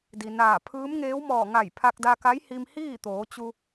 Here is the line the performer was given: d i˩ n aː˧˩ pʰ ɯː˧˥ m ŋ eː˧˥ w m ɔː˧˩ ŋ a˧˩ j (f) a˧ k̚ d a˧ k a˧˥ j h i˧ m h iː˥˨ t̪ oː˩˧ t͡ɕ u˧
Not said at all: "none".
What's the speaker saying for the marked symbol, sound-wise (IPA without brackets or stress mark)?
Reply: pʰ